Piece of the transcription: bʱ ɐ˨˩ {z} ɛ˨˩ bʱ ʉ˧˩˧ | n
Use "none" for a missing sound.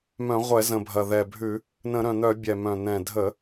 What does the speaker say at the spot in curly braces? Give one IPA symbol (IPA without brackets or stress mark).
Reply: ð